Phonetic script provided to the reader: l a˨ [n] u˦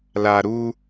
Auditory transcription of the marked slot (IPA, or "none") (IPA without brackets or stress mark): ɾ